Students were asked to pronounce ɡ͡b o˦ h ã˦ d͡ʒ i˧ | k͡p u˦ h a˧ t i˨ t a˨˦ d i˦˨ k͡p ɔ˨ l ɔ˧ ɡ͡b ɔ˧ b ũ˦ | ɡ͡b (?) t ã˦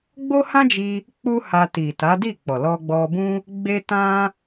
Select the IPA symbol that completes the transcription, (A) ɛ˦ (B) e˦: B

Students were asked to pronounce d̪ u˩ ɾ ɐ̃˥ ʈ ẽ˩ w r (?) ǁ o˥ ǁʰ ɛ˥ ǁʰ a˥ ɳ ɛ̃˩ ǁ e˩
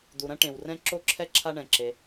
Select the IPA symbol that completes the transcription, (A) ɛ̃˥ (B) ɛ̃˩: A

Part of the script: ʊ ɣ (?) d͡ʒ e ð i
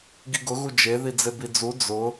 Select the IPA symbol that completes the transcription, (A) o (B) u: B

